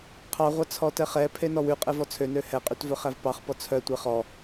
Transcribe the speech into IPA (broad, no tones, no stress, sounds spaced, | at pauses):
qʰ ɑ ʁʷ ɑ t͡sʰ ɔ t ɛ χ ɛ pʰ e n ɔ w ʉ qʼ ɛ v ɔ t͡sʰ ø n ø h ɛ qʼ y t v œ χ æ v p ɑ χ p ɔ t͡sʰ œ tʷ ɛ χ ɔ